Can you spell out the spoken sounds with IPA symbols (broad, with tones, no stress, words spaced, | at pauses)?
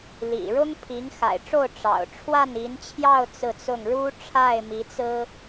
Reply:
lḭ˨˩ɻʊ˥ŋpʰi˧˥ŋ xa̰˨˩ɪ̯ʈ͡ʂo˥˩ʊ̯ ʈ͡ʂɑ̰˨˩ʊ̯ ʈ͡ʂʰwa˥˩ni˧˥nt͡ɕʰjɑ˥˧ʊ̯ t͡sɹ̩˥˧t͡sʊ˥˩ŋ ɻu˥ʈ͡ʂʰa˥˩ɪ̯mi˧˥t͡sɹ̩˥